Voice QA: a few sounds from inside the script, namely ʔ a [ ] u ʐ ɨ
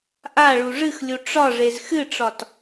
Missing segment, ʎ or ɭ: ɭ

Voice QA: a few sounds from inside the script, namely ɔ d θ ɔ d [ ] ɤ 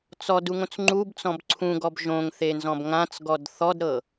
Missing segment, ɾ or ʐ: ɾ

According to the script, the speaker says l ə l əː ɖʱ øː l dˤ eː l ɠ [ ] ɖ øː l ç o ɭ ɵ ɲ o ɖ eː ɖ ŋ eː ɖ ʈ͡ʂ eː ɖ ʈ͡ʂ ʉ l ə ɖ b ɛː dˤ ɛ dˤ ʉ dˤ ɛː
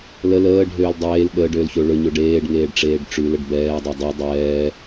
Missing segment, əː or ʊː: əː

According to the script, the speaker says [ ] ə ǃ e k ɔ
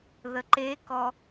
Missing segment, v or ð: ð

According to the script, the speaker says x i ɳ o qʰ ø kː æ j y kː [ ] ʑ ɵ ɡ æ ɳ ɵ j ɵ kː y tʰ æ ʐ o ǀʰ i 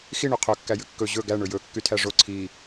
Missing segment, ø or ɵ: ɵ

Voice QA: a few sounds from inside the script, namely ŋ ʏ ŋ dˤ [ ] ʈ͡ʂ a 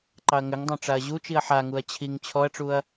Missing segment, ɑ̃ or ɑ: ɑ̃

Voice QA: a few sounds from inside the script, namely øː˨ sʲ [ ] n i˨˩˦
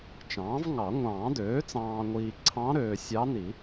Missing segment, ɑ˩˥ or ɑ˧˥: ɑ˧˥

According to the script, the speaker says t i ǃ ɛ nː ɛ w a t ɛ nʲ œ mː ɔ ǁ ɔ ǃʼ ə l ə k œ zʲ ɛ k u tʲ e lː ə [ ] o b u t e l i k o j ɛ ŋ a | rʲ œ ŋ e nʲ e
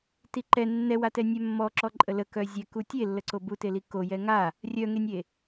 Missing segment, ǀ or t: ǀ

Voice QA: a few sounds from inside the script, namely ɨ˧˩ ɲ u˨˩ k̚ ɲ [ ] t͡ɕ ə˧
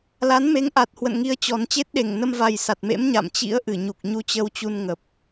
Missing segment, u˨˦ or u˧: u˧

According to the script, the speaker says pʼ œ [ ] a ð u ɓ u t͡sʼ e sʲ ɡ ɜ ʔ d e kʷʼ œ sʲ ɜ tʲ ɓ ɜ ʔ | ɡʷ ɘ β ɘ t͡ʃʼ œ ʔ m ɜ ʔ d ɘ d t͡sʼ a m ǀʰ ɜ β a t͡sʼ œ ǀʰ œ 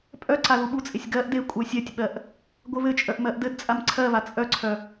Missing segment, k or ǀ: ǀ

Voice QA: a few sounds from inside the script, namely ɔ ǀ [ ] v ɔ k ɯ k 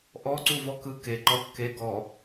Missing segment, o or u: u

